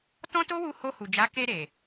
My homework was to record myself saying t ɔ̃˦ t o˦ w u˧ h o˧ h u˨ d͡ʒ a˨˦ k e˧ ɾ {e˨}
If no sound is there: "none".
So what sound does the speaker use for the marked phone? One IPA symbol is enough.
e˨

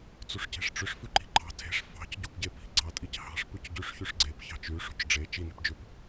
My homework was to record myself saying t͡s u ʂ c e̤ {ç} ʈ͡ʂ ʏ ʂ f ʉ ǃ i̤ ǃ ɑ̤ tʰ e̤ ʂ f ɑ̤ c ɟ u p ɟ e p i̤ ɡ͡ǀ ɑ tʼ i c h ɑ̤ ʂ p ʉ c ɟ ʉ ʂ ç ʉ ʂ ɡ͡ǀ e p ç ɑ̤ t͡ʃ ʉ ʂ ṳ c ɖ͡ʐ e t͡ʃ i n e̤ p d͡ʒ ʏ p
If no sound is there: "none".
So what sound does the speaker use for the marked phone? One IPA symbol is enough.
ʂ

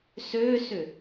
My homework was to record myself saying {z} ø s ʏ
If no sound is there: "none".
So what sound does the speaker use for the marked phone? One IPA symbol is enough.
s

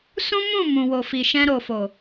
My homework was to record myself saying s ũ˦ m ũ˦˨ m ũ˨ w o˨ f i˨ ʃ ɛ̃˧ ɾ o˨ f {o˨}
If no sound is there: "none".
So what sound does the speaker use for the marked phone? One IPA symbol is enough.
o˨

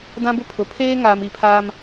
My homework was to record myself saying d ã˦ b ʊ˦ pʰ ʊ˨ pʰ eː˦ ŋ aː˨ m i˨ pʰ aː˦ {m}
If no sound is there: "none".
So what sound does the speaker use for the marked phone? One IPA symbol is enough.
m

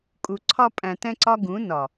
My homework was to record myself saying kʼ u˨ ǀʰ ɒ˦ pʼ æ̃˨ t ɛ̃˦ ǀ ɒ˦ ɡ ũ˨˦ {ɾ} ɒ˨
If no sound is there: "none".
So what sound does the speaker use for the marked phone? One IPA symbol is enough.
n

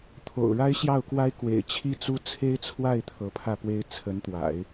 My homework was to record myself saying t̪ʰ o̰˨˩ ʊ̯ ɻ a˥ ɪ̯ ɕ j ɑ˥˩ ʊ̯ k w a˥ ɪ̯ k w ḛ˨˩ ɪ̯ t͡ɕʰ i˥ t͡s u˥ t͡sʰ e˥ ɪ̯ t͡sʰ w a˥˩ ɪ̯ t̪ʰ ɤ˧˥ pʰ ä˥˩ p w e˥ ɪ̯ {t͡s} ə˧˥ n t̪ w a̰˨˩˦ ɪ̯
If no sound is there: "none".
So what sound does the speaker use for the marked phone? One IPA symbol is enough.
t͡sʰ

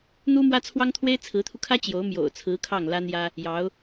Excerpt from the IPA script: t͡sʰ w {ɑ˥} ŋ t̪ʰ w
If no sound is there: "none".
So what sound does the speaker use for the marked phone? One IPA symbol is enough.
ɑ˥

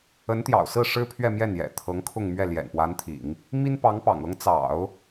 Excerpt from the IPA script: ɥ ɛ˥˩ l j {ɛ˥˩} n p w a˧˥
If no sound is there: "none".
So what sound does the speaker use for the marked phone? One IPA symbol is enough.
ɛ̰˨˩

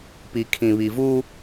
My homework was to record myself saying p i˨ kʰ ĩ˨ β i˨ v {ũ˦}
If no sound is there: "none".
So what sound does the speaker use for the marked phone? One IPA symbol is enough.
u˦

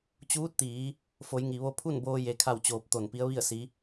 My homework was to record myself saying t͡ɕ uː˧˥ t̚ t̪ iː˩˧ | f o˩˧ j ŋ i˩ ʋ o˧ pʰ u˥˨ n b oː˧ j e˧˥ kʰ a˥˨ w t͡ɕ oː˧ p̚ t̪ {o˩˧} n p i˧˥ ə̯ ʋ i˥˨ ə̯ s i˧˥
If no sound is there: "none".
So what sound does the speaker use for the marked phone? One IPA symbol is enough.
o˧˩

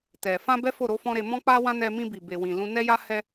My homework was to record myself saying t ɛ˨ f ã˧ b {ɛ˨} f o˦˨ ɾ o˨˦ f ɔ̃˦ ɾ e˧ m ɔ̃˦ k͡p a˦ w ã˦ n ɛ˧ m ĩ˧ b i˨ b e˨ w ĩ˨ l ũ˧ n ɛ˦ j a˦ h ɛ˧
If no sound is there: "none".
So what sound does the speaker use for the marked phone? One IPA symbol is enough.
ɛ˦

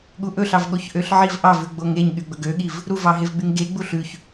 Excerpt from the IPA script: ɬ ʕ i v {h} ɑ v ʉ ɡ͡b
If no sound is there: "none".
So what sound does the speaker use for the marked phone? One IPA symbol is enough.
ʔ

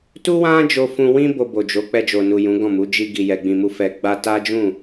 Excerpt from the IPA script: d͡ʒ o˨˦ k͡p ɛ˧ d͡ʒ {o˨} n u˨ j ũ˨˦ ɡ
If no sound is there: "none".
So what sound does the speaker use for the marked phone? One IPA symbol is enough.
o˨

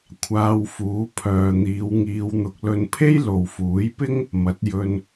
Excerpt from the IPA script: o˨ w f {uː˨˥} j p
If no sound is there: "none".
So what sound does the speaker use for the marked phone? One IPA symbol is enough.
uː˨˥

